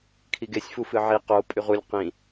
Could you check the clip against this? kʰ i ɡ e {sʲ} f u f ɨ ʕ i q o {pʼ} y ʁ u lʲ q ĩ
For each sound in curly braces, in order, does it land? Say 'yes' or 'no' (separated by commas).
yes, yes